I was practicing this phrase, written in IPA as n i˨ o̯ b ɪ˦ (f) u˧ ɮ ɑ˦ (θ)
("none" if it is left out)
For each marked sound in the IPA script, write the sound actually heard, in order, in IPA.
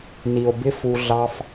f, f

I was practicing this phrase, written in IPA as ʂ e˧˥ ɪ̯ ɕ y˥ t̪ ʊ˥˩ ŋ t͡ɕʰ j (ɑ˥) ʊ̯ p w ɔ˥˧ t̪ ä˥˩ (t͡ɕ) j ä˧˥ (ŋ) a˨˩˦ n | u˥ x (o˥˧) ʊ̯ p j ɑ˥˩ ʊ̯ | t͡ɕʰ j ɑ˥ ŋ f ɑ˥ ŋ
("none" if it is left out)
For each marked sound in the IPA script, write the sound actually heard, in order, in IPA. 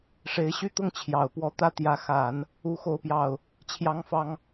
ɑ˨˩, t̪, x, o˥˧

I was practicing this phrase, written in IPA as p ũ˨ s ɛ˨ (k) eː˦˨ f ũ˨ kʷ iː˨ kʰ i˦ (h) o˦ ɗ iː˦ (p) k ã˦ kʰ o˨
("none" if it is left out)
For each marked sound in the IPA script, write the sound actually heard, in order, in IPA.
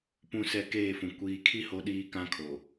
k, h, none

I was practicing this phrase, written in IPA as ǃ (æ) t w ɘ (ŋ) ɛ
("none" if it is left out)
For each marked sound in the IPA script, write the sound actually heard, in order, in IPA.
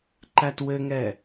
æ, ŋ

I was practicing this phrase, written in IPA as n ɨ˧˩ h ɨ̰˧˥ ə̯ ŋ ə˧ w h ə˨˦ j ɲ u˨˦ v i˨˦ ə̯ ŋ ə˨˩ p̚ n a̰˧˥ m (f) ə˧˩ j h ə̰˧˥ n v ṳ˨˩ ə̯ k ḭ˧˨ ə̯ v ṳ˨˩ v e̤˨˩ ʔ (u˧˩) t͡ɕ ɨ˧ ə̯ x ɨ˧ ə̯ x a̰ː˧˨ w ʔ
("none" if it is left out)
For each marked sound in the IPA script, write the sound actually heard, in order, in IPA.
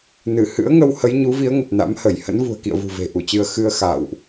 h, u˧˩

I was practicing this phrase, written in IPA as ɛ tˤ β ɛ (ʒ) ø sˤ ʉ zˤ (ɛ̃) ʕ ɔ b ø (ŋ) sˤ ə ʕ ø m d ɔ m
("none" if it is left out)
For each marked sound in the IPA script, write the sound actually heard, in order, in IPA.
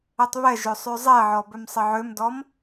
ʒ, ɛ, m

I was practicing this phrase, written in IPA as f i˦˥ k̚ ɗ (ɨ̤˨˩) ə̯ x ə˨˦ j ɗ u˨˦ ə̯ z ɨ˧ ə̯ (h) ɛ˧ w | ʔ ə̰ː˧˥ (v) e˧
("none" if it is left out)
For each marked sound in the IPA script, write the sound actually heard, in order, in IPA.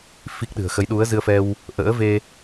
ɨ̤˨˩, f, v

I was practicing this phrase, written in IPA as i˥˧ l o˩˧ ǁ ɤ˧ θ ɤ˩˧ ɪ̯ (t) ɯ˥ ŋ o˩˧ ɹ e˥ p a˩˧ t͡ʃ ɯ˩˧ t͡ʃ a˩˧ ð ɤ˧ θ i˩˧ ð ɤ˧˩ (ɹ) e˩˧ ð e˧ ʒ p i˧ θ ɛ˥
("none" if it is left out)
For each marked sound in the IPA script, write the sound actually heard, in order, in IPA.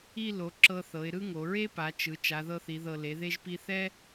ɾ, l

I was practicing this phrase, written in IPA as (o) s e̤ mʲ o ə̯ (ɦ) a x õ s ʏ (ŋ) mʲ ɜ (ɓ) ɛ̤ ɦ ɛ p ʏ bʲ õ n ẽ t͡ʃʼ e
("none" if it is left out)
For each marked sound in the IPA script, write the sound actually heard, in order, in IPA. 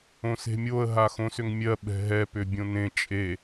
õ, ɦ, ŋ, ɓ

